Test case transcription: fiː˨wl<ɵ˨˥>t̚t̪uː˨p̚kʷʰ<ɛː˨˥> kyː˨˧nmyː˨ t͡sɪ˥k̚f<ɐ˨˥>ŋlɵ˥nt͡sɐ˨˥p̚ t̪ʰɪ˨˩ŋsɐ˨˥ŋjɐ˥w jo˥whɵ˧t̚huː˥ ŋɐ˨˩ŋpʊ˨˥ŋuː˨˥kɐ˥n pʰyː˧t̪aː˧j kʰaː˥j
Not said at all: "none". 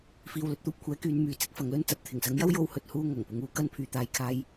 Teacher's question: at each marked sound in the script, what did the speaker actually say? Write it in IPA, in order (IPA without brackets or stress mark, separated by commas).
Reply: ɵ˧, ɛː˨˥, ɐ˨˥